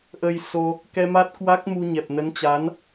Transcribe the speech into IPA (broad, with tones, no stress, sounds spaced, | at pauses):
ʔ ə˧ j s o˧ | k ɛ˧ m a˦˥ t̚ k w a˦˥ k̚ m u˧ ɲ ɛ˨˩ p̚ n ə˨˦ n t͡ɕ a˨˦ n